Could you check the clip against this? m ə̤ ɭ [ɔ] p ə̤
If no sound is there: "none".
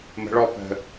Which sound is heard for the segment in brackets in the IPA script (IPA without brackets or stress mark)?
ɔ